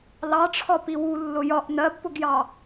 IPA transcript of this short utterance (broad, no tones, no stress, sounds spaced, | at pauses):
l ɑ ʈ͡ʂʰ ɒ p i w u lː ʊ j ɒ ʔ n ɜ b p ʊ ɡ j ɑ